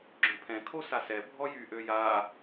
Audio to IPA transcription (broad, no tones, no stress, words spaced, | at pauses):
ɡ͡ǁœ̃pʰɛ̃ kʰosasɛ bʱɔjy ʔøja